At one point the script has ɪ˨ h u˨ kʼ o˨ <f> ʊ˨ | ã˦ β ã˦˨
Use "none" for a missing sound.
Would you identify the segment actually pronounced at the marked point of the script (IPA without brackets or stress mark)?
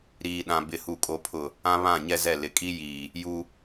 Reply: pʰ